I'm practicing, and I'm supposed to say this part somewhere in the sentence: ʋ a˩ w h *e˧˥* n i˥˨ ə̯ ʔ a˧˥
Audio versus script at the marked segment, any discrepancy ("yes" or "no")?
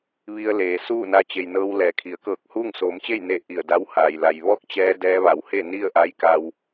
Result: yes